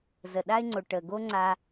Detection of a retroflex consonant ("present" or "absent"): present